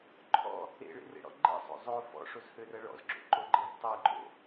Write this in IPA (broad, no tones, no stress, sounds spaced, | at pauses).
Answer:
ǃʰ ɔ̰ | ḛ ɭ ḛ r ḛ ɽ ɔ̰ ɡ͡ǃ ḛ sˤ o̰ zˤ o f ɔ̰ ʂ o z h ø r ɐ ɭ ɔ̰ z ɡ͡ǁ o̰ ǃ o ɡ͡ǃ e z tˤ ɛ ɡ͡ǃ o̰